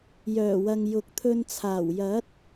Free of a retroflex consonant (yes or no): yes